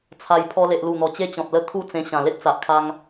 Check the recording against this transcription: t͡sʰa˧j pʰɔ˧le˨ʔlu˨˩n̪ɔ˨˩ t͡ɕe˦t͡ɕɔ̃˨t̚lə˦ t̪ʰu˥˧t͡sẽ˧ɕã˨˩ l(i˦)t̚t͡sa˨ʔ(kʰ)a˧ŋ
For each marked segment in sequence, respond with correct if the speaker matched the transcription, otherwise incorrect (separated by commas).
incorrect, correct